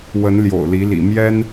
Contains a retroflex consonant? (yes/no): no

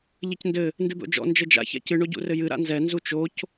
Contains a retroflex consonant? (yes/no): yes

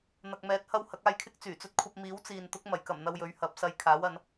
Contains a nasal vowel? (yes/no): no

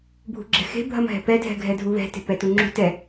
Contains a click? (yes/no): yes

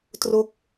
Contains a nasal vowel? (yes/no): no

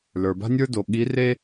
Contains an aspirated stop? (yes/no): no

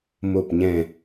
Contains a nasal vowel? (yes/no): yes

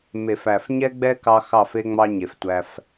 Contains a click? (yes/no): no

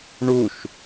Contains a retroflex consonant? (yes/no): yes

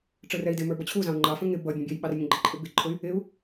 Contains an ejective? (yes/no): yes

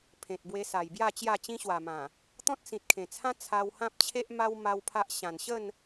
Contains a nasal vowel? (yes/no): yes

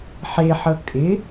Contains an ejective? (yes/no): yes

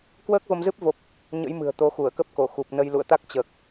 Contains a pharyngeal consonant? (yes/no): no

